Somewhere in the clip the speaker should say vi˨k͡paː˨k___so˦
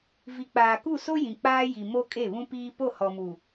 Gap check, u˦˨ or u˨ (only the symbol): u˦˨